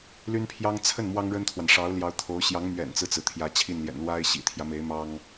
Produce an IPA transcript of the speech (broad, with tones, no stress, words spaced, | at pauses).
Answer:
ly˥npʰjɑ˥ŋ t͡sʰə˥˩n mwɑ˥ŋɻə˥nt̪ʰwa˨n ʂɑ˧˥ʊ̯ljɑ˧˥ʊ̯ t̪ʰo˧˥ʊ̯ ɕjɑ˧˥ŋ mɥɛ̰˨˩nt͡sɹ̩˦t͡sɹ̩˩ t̪ʰjä˧˥t͡ɕʰi˥˩nljɛ̰˨˩n lwa˥ɪ̯ ɕḭ˨˩t̪ʰjä˦me˧˥ɪ̯ mɑ˥ŋ